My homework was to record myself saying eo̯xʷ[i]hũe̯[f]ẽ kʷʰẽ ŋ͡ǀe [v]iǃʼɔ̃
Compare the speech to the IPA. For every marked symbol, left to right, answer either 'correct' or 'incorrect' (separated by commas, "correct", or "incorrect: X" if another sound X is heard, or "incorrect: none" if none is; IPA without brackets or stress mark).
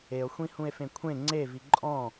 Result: incorrect: ĩ, correct, correct